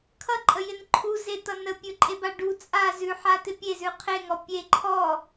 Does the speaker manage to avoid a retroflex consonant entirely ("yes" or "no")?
no